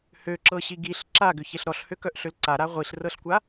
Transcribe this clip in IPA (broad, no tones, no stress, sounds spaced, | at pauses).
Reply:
h ø ǁ ɤ ɕ i ɡ i ɬ ǁ a ɡ ʏ ç e ɬ ɾ ɔ ɬ h ø k œ ʔ ɬ ø l ǀ a ɾ a ʁʷ i ɬ r ɤ ɬ kʷ a